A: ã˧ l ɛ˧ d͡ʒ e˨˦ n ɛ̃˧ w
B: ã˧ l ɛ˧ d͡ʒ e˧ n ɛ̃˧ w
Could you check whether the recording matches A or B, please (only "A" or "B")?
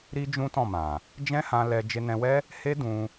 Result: B